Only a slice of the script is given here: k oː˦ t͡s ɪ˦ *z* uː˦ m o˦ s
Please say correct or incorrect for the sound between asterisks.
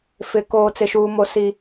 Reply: incorrect